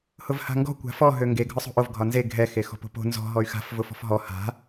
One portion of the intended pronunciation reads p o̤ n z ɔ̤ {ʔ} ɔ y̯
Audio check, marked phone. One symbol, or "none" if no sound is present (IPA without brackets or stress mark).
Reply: ɦ